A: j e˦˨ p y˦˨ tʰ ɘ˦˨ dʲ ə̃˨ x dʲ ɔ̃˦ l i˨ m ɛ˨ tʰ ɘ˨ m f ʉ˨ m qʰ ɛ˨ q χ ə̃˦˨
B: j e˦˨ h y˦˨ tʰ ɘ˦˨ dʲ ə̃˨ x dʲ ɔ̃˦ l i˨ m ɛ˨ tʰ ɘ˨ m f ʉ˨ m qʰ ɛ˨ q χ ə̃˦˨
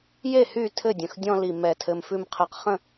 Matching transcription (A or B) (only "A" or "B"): B